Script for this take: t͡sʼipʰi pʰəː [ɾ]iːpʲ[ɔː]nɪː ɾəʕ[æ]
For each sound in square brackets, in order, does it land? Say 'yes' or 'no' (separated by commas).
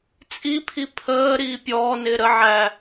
yes, yes, yes